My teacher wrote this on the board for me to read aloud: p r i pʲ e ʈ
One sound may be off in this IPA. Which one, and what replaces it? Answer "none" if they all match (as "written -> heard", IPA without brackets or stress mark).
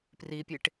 none